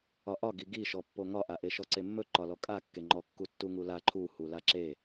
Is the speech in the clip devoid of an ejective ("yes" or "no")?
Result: no